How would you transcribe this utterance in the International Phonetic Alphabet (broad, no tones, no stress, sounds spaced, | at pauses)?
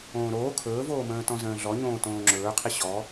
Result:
õː ɾ oː kʰ ɵː v oː m ə̃ː t ɔ̃ z ə̃ː ɮ ɔ ɲ õː t õː ŋ͡ǁ ɵː qʰ i ɕ ɔ